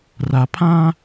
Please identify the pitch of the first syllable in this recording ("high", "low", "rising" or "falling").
low